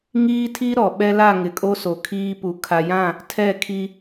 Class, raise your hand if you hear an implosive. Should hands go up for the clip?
yes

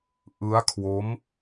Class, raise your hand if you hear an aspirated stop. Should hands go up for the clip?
yes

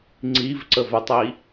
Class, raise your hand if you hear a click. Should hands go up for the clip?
yes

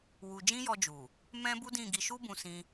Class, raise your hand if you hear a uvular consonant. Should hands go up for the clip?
no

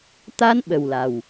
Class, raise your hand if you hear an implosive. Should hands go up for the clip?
yes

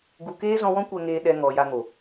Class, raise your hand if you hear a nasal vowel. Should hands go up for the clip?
yes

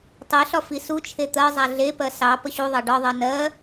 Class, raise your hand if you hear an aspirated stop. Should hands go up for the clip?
yes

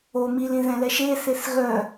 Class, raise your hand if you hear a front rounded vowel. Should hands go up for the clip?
yes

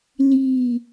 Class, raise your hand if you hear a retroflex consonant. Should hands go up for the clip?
no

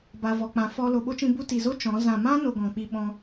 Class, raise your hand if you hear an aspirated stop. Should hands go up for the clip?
no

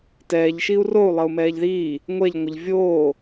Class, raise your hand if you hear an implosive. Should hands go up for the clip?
no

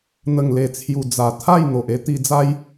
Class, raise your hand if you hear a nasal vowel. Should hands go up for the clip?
no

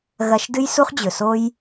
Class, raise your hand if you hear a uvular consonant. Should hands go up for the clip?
yes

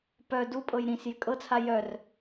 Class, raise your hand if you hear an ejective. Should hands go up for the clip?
yes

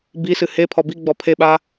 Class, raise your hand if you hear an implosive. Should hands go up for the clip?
yes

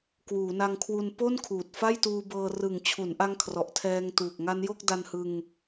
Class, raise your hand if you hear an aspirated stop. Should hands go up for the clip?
yes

